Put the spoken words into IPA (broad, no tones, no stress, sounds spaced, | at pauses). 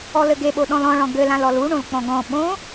ɔ l ɘ ɡ e ɓ o ɗ ɔ̃ l ɔ̃ ɭ ɔ̃ ɡ ɘ l ã l ɔ l u ɳ õ l k͡p ɔ̃ ɡ ɔ̃ ɓ õ